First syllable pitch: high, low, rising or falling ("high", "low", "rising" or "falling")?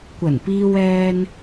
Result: low